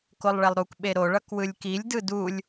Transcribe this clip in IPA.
k o lˠ ɭ ɛ lˠ ɾ u k ɓ e ɾ o ɭ ʌ k w ɯ lʲ k i lʲ d ɯ d u lʲ

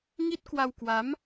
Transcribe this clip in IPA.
ŋ i˦˥ t̚ k w a˧ w k w a˨˦ m

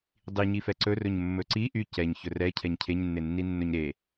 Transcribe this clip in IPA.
dˤ i ɲ i f ɛ ǀ ɵ r ɵ ɲ mː ɵ ǀ i ʔ y c ɛ ɲ ç ɵ r ɛ cʰ ɛ ɲ cʰ e ɲ nː e nː i nː ɵ ɲ ɾ e

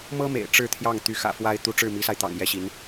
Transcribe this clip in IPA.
m ɤ˥ m ḛ˨˩ ɪ̯ ʈ͡ʂ ɻ̩˥˧ t̪ʰ j ɑ˥˩ ŋ t̪ y˧˥ x ä̰˨˩ f w a˥ ɪ̯ t̪ u˧˥ ʈ͡ʂ ɻ̩˥˩ m i˧˥ s a˧ ɪ̯ t̪ ɑ̰˨˩ ŋ j ɛ˥ ɕ i˧˥ n

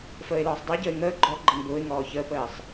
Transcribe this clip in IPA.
f əː ɪ̯ l ɔː sˤ dˤ ʊ ɪ̯ ɟ əː ɪ̯ ŋ əː ɡ͡ǃ ɔ ɡ͡ǃ ə ŋ b ʊː ɪ̯ ŋ ɔː ç əː p əː sˤ

